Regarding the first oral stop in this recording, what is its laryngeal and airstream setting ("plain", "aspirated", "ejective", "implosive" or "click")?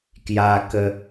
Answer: plain